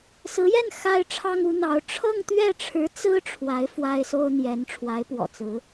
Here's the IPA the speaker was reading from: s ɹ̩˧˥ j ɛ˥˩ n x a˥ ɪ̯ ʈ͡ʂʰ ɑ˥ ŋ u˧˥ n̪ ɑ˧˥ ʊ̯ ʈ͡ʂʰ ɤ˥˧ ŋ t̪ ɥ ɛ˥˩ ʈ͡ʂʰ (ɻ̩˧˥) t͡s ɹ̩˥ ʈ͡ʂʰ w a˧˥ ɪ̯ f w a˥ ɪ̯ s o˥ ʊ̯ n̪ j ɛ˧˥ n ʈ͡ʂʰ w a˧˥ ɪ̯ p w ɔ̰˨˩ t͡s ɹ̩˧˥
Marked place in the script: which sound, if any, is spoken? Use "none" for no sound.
ɻ̩˧˥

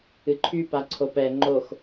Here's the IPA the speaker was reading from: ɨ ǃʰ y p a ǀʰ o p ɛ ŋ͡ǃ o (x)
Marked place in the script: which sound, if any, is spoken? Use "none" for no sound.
x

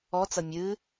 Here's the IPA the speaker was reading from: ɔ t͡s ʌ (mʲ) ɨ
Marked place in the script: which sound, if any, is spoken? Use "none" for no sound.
mʲ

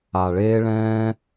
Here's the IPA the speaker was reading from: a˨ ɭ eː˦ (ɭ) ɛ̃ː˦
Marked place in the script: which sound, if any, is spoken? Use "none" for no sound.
ɭ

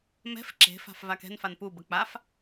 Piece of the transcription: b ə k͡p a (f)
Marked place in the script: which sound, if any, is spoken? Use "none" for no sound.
f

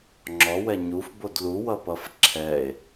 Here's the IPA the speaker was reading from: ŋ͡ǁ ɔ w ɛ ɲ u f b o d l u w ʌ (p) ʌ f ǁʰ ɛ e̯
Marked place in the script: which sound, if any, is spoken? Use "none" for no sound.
p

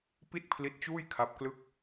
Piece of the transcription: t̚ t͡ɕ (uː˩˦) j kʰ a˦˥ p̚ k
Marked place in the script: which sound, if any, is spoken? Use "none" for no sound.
uː˥˩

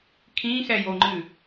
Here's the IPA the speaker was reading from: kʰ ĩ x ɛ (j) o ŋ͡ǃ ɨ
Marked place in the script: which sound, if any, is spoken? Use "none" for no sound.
j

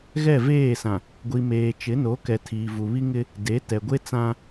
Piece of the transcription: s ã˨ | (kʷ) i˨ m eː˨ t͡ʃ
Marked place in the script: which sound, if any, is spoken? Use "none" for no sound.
ɡʷ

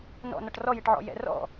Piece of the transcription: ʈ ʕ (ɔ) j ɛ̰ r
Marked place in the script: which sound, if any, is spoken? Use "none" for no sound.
ɔ̰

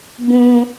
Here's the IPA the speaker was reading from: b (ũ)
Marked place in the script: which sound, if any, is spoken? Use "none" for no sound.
ũ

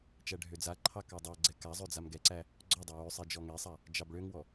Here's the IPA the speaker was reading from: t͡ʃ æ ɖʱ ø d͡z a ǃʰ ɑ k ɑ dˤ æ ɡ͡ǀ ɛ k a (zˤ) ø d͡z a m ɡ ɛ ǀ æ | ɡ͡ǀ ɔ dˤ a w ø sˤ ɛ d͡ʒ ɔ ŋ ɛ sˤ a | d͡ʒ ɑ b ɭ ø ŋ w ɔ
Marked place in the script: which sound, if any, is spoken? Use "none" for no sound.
zˤ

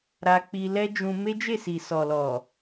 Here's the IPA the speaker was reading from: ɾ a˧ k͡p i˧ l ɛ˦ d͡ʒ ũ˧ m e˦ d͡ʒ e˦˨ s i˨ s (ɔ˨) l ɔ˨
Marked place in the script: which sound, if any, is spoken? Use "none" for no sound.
ɔ˨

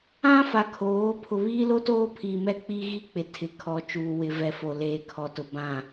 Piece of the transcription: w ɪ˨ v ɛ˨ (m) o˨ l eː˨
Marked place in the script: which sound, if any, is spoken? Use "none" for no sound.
f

